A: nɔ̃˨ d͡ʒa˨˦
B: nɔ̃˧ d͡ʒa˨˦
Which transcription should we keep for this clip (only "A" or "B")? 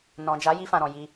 A